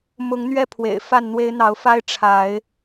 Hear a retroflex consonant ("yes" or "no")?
yes